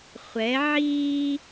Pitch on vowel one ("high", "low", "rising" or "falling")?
rising